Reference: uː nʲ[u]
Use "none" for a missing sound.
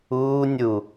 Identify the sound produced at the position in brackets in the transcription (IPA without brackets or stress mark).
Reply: u